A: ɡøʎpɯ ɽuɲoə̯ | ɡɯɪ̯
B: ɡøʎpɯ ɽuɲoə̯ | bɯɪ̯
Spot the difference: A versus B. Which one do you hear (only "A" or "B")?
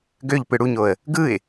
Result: A